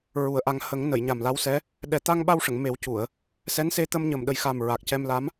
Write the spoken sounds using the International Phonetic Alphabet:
ɹ u˨˩˦ ə̯ ʔ a˧ ŋ h ə˨˩˦ ŋ n ə˨˩˨ j ɲ a˨˩ m l a˧˥ w s ɛ˧˥ | ɗ ɛ˨˩˦ t̪ a˧ ŋ ɓ a˧ w ʂ ə˨˩˨ ŋ m e˨˩˦ w c u˨˩˨ ə̯ | s ɛ˧˥ n s e˧ t̪ ə˧ m ɲ ə˨˩ m ɗ ə˨˩˦ j x a˨˩ m ɹ a˨˩ k̚ c ɛ˧ m l a˧˥ m

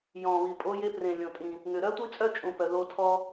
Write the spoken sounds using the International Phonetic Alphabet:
j ɔ̃˨˩ β i˨˩ pʼ o˧˥ j e˧˥ p r ẽ˨˩ lʲ õ˨˩ tʼ ĩ˨˩ | ŋ ʏ˨˩ ɾ œ˥ tʷ i˥ t͡sʼ œ˥ t͡ʃʼ ũ˨˩ p œ˨˩ ð o˧˥ tʰ ɔ˥

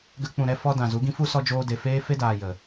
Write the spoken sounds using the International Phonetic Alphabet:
ɡ ə˧ k͡p ũ˨ ɾ ɛ˧ f ɔ˧ d ã˨ z u˨˦ ɡ ĩ˦ f u˦ s ɔ˧ d͡ʒ oː˧ d e˨ f eː˦ f e˦ d aː˨ j ə˨

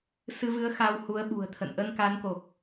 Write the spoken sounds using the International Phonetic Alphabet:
s ɨ˧ v ɨ˨˦ ə̯ x a˧ w h u˨˦ ə̯ ɓ ṳ˨˩ ə̯ t̪ʰ ə̰˧˨ n ʔ ə˧ n k a˨˦ n k o˨˩ k̚

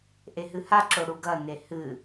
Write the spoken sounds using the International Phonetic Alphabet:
ʔ e ɦ ɨ h a ǁ o ɽ u ɡ ɐ n e h ɨ

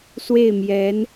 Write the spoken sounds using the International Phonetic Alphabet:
s w e˥˩ ɪ̯ m j ɛ˧˥ n

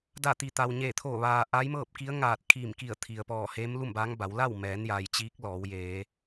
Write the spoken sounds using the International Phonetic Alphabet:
d a˧˩ t̪ i˩ t̪ a˩ w ɲ eː˧˩ t̪ʰ oː˧˩ ʋ aː˩ ʔ a˧˥ j m ɤː˥˨ p̚ k i˧˥ ə̯ ŋ aː˧˩ t̚ kʰ iː˧˩ m k i˧˩ ə̯ t̪ʰ i˩ ə̯ p ɔː˧˩ h eː˧˥ m l u˥˨ m b aː˧˥ ŋ b a˩˧ w l a˥˨ w m ɛː˩˧ n j a˩ j t͡ɕ iː˧˥ k̚ l ɔː˩˧ w j eː˩˧

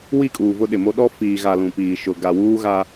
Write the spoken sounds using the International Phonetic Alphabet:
w i˦˨ kʼ uː˨ v ʊ˦ ɗ ɪ˨ m o˦ ɗ ɔ˦ f iː˨ ɣ a˨ l ũ˨ p iː˨ ʃ ʊ˨ ɡ a˨ w uː˦ ɣ a˦

